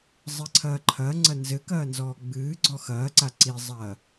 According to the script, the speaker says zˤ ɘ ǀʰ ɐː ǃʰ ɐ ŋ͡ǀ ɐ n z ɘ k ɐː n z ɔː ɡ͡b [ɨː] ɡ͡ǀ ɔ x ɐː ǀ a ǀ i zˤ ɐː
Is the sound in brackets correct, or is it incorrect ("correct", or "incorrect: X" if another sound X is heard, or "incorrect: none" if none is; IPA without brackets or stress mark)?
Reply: correct